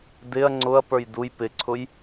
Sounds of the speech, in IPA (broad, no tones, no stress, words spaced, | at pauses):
dɪɐ̯ ŋ͡ǀʊɐ̯ pə˞jduj pɪǀʰʊj